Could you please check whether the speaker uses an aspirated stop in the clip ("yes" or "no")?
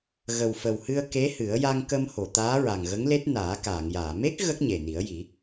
no